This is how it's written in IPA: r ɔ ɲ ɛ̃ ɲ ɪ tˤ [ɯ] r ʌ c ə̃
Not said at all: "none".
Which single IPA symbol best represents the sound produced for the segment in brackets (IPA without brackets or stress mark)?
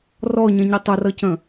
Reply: ə